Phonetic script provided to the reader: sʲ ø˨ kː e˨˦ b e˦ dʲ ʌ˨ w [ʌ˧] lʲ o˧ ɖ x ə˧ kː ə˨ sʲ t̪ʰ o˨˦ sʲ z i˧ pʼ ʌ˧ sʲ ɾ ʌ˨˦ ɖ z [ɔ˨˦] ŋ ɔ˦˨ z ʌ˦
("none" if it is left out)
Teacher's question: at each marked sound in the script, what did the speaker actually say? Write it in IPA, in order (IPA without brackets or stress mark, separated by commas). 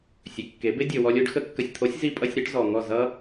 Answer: ɔ˧, ɔ˨